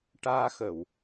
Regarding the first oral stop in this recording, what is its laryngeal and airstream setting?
plain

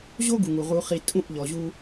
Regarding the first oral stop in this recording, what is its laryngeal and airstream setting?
plain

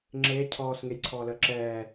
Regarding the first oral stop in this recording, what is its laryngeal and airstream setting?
click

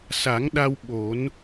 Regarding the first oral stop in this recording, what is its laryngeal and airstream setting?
implosive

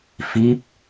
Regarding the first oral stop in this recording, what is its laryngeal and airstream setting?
plain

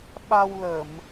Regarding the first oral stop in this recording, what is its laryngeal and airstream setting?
implosive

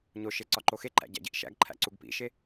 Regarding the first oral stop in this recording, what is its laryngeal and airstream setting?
click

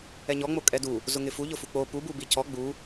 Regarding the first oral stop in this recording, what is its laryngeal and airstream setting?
ejective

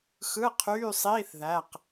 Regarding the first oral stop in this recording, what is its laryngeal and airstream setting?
aspirated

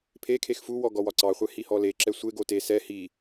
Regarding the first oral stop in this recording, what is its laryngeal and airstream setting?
aspirated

